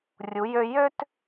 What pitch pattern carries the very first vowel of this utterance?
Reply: rising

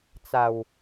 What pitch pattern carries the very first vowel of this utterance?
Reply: low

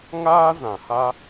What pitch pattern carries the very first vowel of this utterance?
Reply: high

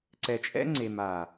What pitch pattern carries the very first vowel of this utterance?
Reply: low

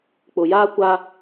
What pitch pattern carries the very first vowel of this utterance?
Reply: low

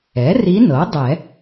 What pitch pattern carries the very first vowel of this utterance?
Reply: rising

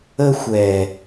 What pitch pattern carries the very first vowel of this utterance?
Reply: high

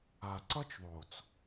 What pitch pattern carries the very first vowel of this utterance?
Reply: low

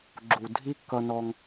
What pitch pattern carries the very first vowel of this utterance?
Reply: low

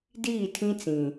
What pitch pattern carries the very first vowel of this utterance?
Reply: falling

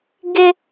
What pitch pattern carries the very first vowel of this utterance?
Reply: high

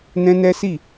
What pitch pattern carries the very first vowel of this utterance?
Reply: high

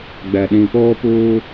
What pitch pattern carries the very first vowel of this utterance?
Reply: low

